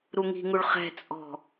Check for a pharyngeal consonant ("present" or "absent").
absent